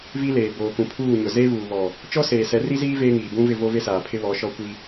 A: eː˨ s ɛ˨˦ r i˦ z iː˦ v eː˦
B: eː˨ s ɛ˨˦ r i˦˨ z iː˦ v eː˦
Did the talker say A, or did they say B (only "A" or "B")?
A